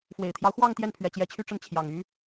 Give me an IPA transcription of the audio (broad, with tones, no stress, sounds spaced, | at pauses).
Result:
f w e˨˩ ɪ̯ t̪ʰ j ɑ˦ ʊ̯ x w ɑ˥˧ ŋ t̪ j ɛ˥˩ n pʰ ɥ ɛ˨˩ t͡ɕ j ɛ˧˥ t͡ɕʰ y˥ ʈ͡ʂ ə˥˩ n t͡ɕʰ j ɑ˨˩ ŋ y˧˥